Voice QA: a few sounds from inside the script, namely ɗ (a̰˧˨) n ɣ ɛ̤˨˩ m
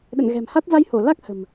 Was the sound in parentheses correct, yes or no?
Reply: no